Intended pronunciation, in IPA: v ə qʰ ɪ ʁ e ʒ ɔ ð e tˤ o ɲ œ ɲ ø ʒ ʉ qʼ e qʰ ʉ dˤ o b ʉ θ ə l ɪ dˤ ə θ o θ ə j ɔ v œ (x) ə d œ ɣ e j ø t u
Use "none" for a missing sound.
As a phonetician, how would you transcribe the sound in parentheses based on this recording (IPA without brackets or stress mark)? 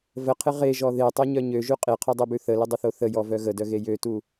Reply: ɣ